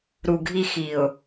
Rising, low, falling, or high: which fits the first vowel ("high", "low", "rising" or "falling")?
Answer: low